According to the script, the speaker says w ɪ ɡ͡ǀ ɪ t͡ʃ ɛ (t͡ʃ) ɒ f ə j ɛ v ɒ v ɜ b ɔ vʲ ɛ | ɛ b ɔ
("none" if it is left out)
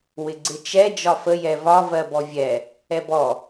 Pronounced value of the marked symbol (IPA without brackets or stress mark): d͡ʒ